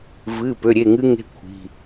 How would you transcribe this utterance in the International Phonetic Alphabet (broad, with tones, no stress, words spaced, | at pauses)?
vɨ˩˧˩ pø˩˧˩ɾʲe˩˧˩ŋɨ˦˥ŋe̤˦˥ kʷʰi̤˩˧˩